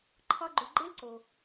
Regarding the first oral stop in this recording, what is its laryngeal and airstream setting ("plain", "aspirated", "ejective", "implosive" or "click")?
click